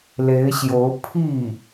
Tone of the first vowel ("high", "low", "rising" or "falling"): rising